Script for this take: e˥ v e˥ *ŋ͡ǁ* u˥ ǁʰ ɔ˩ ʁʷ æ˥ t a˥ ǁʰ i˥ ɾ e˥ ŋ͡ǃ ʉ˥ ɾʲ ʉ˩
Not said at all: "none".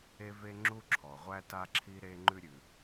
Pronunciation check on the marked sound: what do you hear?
ŋ͡ǁ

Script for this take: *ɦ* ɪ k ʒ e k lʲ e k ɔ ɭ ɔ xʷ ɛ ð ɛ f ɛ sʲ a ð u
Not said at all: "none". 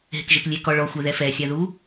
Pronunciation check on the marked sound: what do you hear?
ɦ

